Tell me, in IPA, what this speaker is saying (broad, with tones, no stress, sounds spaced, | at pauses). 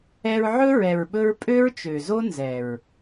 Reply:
ɛ˧ ɹ ʕ ɵ˦ ɹ ɛ˨ ɹ ɓ ɵ˧ ɹ pʼ ø˦ ɹ t͡ʃ ø˨ z o˦ n z ɛ˨ ɹ